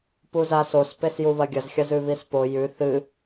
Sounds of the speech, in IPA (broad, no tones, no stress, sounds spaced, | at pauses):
p u z a s o s p e s j u β ɐ ɡʲ ɐ z xʲ ɐ z ʉ β i s p o j ʉ θ ɨ